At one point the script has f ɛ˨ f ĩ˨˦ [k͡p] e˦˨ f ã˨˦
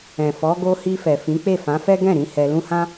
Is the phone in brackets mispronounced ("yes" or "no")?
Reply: no